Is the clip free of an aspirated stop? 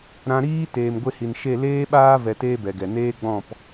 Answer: yes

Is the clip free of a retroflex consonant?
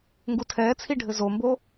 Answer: no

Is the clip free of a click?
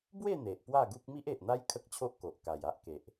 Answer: yes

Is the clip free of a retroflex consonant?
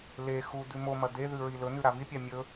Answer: yes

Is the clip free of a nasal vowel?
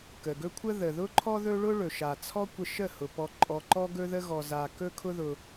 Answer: yes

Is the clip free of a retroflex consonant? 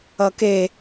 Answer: yes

